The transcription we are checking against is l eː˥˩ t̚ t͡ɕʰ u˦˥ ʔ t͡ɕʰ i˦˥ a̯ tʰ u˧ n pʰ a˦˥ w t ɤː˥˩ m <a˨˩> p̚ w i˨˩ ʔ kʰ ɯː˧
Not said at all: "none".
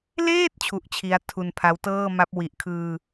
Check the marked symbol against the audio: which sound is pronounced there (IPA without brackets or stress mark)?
a˦˥